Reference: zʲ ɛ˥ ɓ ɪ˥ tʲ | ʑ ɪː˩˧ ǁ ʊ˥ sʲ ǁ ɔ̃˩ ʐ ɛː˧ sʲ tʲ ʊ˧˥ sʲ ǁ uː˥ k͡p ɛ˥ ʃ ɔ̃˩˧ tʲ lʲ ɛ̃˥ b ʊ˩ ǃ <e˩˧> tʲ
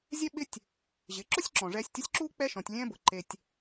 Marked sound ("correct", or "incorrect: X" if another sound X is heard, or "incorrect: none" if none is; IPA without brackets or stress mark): incorrect: e˧